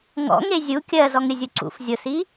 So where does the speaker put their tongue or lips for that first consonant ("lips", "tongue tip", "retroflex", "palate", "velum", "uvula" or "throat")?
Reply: velum